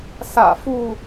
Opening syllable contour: low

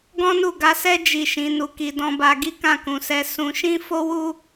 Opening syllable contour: high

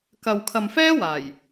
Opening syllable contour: low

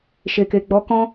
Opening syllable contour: low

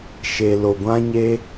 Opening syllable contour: low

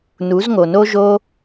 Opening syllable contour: rising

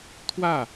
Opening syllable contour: falling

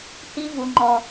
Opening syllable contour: high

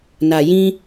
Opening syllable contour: low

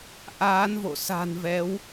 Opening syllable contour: rising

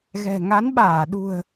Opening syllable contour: low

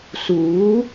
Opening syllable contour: rising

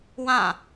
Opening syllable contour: falling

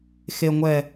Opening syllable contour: low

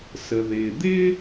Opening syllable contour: low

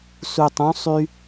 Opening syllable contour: low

